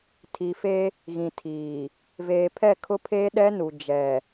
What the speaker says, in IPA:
tʰ i˨ f e˦ | ɣ ĩ˨ tʰ iː˨ | v eː˨ pʰ ɛ˦˨ kʰ ʊ˦ pʰ eː˦ ɗ ɛ˦ n u˨ d͡ʒ ɛ˨

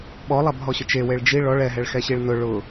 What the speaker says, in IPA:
ɓ ɔ lˠ a b ɦ ɔ ɕ ʊ t͡ʃ e w e ɭ d͡ʒ i ɭ ɔ ɭ ɛ ɦ ɛ ɭ x ɛ ɕ i ɭ n ʊ ɭ ʊ

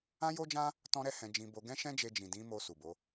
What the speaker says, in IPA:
ã˦ j o˦ d͡ʒ ã˦ | t ɔ̃˦ ɾ ɛ˦ h ɛ̃˧ d͡ʒ ĩ˧ b o˧ ɡ ɛ̃˦ ʃ ɛ̃˦ d͡ʒ e˧ d͡ʒ ĩ˨ d ĩ˨˦ m o˧ s u˨ b o˨˦

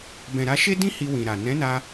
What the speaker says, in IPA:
b ɛ̃˨ ɾ a˧ ʃ e˦ d ĩ˦ h i˧ w ĩ˨ ɾ a˨ n ɛ̃˨˦ n a˧

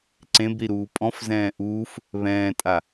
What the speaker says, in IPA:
ǀ ẽ b ɾ i ɾ uː pʼ ɔ̃ f z ɛ̃ː ʔ uː f | β ɛ̃ː tʼ a

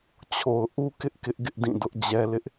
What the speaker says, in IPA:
t͡ɕʰ o˨ ʊ̯ ʔ u˦ k ɪ˦ ʔ k ɪ˦ ʔ ɡ ɪ˦ ʔ d ĩ˦˨ d ʊ˦ ʔ d͡ʑ ɛ˦ l ɪ˦ ʔ

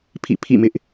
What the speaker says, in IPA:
pʰ ḭ˦˨ pʰ ḭ˦˨ m ɪ˦ ʔ

